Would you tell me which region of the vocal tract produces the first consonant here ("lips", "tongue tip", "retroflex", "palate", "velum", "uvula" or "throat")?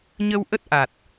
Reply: palate